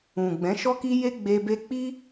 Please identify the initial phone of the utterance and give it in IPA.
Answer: ũ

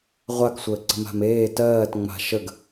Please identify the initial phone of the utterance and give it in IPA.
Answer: ʁʷ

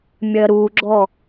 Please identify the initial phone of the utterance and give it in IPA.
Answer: mʲ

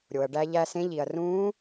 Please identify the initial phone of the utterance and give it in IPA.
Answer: ɾʲ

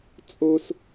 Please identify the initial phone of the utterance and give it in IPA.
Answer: t͡sʼ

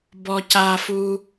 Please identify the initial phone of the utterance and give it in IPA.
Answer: b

